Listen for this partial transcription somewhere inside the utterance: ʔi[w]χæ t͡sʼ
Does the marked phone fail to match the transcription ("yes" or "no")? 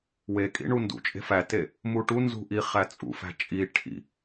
yes